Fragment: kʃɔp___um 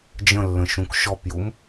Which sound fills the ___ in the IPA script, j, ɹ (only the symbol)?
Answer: j